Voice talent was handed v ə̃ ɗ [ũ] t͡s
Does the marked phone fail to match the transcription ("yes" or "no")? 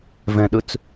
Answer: yes